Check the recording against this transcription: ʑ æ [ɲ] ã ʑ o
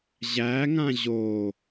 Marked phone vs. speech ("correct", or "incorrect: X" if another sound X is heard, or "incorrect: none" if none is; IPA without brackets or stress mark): incorrect: ŋ